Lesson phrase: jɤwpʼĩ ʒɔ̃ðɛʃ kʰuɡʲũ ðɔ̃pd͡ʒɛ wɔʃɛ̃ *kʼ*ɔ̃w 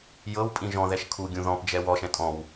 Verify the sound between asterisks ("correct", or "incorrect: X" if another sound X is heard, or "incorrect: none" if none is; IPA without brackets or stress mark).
incorrect: tʼ